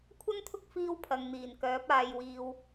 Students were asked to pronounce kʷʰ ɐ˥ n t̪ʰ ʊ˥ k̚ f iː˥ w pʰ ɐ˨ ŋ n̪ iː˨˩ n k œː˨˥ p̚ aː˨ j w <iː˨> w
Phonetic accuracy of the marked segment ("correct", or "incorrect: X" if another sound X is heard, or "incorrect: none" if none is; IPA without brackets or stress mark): correct